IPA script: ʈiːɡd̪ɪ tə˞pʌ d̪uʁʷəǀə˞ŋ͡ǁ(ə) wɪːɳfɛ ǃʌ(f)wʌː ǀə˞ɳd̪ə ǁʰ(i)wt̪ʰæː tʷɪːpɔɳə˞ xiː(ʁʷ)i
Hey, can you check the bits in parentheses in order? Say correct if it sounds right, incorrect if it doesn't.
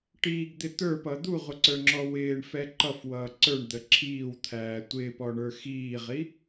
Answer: incorrect: ɔ, correct, incorrect: iː, incorrect: ʁ

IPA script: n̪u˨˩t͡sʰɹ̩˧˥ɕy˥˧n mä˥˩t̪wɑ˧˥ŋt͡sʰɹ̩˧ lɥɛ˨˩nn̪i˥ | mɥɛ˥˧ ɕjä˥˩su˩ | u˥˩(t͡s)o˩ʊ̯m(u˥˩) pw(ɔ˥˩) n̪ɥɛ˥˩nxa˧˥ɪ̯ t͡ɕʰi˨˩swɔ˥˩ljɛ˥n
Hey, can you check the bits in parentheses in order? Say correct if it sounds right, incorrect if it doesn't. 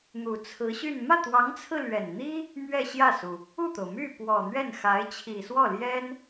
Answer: incorrect: t̪, incorrect: y˥˩, incorrect: ɔ˨˩

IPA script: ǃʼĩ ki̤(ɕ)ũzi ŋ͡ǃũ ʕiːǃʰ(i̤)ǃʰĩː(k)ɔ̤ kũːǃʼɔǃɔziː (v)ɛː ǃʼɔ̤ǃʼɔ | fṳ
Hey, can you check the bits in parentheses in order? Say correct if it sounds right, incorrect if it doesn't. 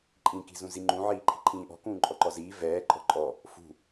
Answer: incorrect: z, correct, incorrect: ʔ, correct

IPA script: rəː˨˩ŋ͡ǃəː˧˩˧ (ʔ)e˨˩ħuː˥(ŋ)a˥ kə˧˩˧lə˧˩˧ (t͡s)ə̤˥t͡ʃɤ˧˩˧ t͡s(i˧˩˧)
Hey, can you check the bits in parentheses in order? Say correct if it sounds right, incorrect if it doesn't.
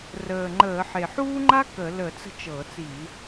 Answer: incorrect: ħ, incorrect: ŋ͡ǃ, correct, correct

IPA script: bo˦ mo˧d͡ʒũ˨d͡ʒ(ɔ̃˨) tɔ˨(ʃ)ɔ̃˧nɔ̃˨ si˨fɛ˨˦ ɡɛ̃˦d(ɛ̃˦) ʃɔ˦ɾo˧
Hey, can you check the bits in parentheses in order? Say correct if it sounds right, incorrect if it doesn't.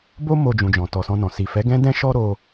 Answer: correct, incorrect: s, correct

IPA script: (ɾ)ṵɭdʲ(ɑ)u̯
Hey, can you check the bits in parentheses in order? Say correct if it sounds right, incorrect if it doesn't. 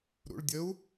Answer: correct, incorrect: ə

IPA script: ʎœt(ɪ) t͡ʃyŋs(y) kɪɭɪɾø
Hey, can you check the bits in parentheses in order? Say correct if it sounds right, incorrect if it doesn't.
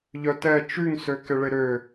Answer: incorrect: ɛ, incorrect: ø

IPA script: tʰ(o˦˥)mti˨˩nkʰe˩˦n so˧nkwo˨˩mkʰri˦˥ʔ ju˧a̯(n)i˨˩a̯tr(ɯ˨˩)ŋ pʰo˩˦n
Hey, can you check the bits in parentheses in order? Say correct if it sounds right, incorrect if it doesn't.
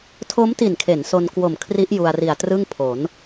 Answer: correct, incorrect: r, incorrect: ɯ˥˩

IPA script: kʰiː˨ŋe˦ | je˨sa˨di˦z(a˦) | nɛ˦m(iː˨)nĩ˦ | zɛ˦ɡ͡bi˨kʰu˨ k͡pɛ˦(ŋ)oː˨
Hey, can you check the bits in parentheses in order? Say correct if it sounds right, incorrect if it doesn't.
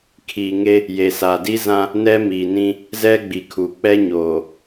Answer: incorrect: ã˦, correct, incorrect: ɲ

